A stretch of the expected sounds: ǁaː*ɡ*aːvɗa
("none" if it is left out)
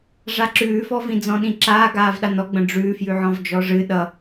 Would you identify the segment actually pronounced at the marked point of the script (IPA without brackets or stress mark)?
ɡ